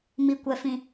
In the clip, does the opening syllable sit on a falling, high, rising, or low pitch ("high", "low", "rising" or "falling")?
low